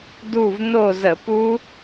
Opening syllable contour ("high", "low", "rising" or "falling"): falling